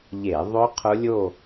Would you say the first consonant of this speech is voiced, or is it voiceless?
voiced